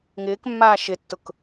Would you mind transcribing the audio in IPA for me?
ŋ ɪː k mː aː ʃ ɪ tː ʊ k

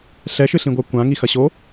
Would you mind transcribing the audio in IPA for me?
ɬ ɛ ʃ ɨ ɬ ĩ ɡʷ a kʷ ã ŋ i x ɐ ɕ o

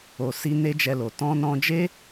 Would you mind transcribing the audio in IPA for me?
o˨ s i˧ n e˦ d͡ʒ ɛ˧ l o˨ t ɔ̃˧ n ɔ̃˧ d͡ʒ e˦

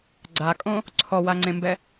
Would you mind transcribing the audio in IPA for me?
ɡ͡ǀ a kʼ õ | ǀʰ ɔ w a ŋ͡ǀ ẽ m b ɛ

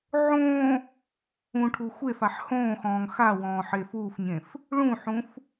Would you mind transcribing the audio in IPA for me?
ʕ õː | ũ ʈʰ u xʷ e f a ħ h õː x ɔ̃ː ŋ x a w ɔ̃ː ħ e f uː f ɲ ẽ f | ɭ ũ ħ ũ f

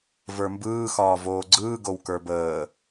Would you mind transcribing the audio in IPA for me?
v ə˞ m b ɯː x ɒː v oː ɡ͡ǀ ɯː ɡ o w k ə˞ b əː

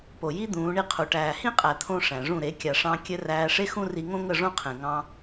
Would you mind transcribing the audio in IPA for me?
p o˨ j i˦ d̪ ũː˨˦ ɳ i˦ qʰ u˨ ʈ æː˨ h ĩ˦ qʼ æ˨ t̪ʰ õ˦ ʂ æ̃˨ ʐ ũ˦˨ ɾ e˨˦ kʲ a˨ ʂ ɑ̃˧ kʲ ɘ˧ r æː˧ ʂ e˦ x ũ˦ r i˧ ŋ õ˦ ŋ ə˦˨ ʐ õ˦ qʰ ẽ˨ ŋ ɑ̃˧

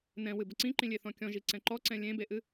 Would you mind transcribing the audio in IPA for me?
n ɛ̃ w ɨ b ə ǀ ĩ ǃ ĩ lʲ e θ ɔ̃ kʲ ɔ̃ ʒ i ǀ ɛ̃ ǃ ɔ ǀ ɛ̃ lʲ ẽ b e ʔ ɨ

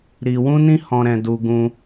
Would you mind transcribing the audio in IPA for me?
ɾ i˧ w ũ˦ n ĩ˦ h ɔ̃˧ ɾ ɛ̃˧ d u˧ ɡ ũ˧

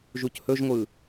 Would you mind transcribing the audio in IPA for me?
ʒ u c h ɵ ʒ ŋʷ ɯ

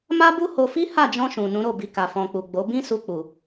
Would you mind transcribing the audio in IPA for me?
m a˦ b u˦ h o˧ f i˦ h a˦˨ d͡ʒ ɔ̃˧ ʃ ũ˨ n ũ˨˦ ɾ o˦˨ b i˧ k a˨ f ɔ̃˨ k͡p u˨ ɡ͡b o˨˦ b ĩ˦ s u˧ k͡p u˨

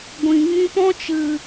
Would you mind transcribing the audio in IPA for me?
ɡʷ ĩ˨ ŋ ĩ˧ p ɔ̃˦ t͡ʃ ɨ˨

